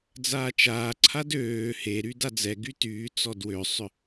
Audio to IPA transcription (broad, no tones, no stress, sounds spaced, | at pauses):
d͡z aː t͡ʃ aː ǀʰ a d øː h e ɾ y d a d͡z ɛ ɡ y t yː t͡s ɔ d w ø sˤ ʏ